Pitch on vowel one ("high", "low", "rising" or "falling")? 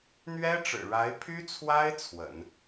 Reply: high